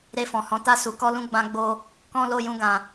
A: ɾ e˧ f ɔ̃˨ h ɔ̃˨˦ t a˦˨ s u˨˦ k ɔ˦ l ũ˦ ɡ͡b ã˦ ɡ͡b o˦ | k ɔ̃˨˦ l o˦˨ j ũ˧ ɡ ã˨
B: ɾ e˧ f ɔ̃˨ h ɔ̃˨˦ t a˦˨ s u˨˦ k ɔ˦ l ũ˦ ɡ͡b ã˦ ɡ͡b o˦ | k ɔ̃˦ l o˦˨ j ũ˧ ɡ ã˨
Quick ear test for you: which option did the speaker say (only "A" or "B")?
B